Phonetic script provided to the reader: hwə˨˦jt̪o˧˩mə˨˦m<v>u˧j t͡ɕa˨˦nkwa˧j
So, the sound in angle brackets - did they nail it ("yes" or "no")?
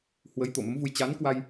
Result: yes